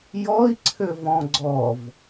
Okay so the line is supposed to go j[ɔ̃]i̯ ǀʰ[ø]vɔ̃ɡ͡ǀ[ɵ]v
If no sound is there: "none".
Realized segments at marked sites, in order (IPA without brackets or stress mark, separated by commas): ɔ, ø, ɔ